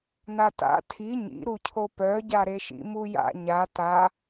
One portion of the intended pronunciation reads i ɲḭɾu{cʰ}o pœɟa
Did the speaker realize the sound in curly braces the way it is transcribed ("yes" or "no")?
yes